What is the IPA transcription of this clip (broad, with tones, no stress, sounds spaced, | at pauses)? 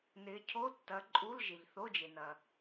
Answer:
n ɪ˨˦ cʰ o˧˥˧ tː ɐ˨˦ ǃʼ u˧˥˧ l ʒ ɪ˩ ʎ θ o˧˥˧ d͡ʒ e˩ n ɐ˩